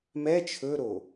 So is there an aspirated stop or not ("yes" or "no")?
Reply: yes